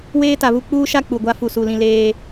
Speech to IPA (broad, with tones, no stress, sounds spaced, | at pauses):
w eː˦ t a˨ β u˦ k͡p uː˦ ʃ a˦ k͡p u˨ ɡʷ a˦ f u˨ s u˨ l ĩ˨ l eː˨